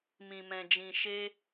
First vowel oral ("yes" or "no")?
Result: no